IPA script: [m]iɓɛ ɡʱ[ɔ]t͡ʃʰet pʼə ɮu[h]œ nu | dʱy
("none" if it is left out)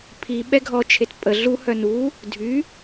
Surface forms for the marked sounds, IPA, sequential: pʰ, ɔ, h

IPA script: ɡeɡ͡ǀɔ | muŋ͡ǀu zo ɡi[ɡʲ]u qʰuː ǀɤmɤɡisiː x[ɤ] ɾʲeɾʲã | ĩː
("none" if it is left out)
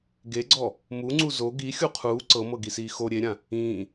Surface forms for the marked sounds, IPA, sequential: xʲ, o

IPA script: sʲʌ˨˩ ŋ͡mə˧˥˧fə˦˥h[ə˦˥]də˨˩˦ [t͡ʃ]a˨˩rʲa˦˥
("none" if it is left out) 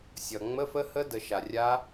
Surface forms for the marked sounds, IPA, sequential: ə˦˥, ʃ

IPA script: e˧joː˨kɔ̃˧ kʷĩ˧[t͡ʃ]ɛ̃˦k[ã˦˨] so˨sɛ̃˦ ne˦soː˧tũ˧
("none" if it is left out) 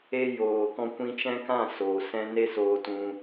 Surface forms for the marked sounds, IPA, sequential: t͡ʃ, ã˦˨

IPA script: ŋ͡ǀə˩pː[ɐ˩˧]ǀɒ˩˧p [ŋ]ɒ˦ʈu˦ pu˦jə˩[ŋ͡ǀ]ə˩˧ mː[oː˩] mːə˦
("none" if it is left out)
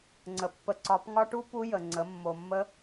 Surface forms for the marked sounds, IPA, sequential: ə˩˧, ŋ, ŋ͡ǀ, o˩

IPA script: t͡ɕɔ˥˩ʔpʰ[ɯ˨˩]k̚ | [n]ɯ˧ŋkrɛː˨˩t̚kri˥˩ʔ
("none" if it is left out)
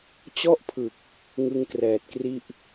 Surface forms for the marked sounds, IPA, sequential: ɯ˨˩, ŋ

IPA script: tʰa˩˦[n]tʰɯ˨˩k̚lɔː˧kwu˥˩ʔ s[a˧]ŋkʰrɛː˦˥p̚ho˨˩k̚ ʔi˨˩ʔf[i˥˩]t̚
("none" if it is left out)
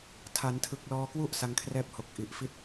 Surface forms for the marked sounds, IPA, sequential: n, a˧, i˥˩

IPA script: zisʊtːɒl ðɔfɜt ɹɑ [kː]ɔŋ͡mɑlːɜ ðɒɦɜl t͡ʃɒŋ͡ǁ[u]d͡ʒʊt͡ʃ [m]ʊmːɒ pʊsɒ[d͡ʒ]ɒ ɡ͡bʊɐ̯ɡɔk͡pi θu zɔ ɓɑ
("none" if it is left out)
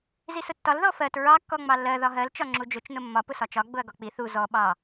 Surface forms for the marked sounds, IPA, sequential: kː, u, n, t͡ʃ

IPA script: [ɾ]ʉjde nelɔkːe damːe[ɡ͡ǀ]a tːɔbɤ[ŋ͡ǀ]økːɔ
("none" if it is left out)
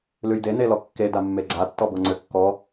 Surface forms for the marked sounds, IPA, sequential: l, ɡ͡ǀ, ŋ͡ǀ

